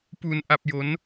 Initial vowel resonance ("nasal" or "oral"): oral